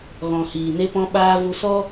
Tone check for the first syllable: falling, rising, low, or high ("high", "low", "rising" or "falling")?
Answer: low